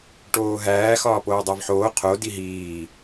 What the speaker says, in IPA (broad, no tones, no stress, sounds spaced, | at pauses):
ʈ oː ɦ æː x ɒː p oː dˤ æ v ħ oː qʰ o d i ɦ iː